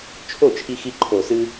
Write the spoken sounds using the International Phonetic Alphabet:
t͡ʃʰo˥˩t͡ʃʰi˧xi˧ ǃʰo˨˩sɨ˧

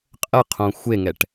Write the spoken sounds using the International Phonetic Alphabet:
qʼəqʰõ xʷeŋɛʈ

